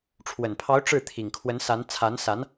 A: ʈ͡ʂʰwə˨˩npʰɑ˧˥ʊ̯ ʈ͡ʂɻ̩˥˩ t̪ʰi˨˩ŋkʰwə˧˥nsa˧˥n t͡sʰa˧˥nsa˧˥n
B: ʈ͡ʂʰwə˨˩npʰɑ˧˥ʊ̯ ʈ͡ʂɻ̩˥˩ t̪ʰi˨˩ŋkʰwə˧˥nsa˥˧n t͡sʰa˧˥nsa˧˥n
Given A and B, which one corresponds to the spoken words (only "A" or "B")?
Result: A